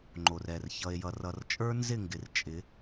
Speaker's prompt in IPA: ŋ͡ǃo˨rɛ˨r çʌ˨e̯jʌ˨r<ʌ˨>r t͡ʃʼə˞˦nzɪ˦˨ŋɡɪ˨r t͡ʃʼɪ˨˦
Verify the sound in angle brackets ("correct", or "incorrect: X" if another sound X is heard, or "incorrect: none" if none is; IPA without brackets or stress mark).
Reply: correct